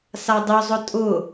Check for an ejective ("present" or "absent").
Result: present